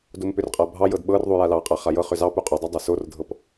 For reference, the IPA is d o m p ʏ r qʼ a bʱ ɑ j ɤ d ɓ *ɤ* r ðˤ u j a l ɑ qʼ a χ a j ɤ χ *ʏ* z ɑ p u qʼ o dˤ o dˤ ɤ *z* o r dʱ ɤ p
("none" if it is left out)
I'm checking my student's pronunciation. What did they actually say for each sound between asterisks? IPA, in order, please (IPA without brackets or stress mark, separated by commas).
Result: ɤ, ʏ, s